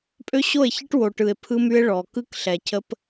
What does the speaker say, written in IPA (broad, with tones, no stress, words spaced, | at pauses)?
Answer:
pʼø˦ɕo˦˨e̯çɨ˦ʈ wo˨ʈɯ˨e̯pʰɯ˦my˦e̯ ɭɔ˨ kɯ˦kɬɛ˨cʰə˦p